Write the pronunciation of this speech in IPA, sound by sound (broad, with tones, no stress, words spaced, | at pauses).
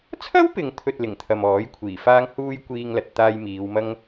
t͡sʰɐ˥wpɪ˨ŋt̪ʰɵ˨t̚ lɪ˨˩ŋt̪ʰɐ˨m ɔː˨˥jkʷʰiː˨˩faː˥ŋhuː˥j kʷiː˥ŋlɐ˧t̚t̪aː˥j miː˨˧wmɐ˥ŋ